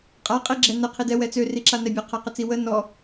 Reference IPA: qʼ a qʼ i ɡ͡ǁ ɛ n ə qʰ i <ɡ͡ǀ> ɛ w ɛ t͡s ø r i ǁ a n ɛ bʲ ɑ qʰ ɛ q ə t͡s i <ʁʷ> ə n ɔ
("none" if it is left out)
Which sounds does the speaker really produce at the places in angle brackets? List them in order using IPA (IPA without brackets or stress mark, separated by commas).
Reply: d, w